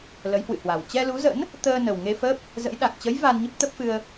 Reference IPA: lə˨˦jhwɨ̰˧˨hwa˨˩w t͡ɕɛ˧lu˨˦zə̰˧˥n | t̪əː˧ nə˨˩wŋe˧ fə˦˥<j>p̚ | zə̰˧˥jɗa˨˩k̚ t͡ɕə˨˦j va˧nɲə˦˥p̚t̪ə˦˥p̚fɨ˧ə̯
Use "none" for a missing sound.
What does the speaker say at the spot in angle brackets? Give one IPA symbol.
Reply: none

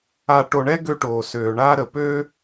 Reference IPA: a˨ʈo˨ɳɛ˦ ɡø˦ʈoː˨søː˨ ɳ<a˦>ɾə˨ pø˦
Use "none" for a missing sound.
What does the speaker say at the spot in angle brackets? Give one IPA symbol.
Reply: a˦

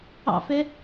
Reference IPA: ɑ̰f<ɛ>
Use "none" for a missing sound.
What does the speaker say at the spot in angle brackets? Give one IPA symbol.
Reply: ɛ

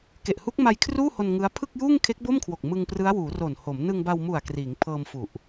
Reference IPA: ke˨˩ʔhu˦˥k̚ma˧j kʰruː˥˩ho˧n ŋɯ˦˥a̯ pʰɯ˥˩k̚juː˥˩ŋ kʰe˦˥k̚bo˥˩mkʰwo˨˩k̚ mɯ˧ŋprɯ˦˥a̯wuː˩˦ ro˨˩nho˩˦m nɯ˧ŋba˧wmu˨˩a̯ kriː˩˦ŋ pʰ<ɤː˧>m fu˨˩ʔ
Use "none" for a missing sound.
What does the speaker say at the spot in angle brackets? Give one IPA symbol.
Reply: ɤː˧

